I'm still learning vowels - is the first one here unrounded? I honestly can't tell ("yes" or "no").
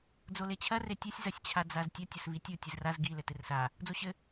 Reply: no